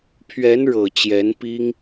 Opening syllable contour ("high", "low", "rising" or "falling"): rising